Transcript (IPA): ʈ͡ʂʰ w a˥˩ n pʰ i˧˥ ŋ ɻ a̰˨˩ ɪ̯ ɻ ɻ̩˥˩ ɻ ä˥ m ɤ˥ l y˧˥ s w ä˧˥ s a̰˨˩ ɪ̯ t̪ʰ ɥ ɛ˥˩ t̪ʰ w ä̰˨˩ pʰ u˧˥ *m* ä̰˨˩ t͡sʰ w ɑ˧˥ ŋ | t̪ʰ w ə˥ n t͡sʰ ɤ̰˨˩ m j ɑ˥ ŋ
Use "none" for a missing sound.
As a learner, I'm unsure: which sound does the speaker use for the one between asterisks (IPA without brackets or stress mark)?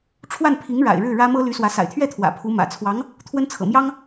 m